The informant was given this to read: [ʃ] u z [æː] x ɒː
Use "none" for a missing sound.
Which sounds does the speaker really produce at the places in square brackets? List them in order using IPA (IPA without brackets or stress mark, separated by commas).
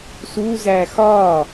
s, æː